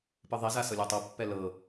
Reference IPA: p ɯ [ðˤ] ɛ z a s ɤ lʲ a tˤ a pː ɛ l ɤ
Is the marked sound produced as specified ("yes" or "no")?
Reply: yes